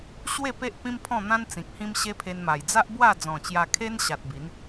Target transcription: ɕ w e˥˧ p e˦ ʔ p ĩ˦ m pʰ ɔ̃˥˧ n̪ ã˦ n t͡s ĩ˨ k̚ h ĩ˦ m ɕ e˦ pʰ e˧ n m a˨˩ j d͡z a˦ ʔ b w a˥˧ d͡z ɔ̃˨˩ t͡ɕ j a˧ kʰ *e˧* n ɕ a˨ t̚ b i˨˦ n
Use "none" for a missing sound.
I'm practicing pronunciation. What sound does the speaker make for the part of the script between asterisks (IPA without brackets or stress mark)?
e˦